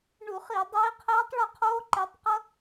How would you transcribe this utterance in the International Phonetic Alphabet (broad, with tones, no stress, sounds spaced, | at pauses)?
ɳ u˧˩˧ χ i˧˩˧ dˤ iː˨˦ qʰ ɛː˦˥ tˤ ɭ e˥˩ qʰ oː˦˥ ǃ ɛ˨˦ tˤ q ʌ˦˥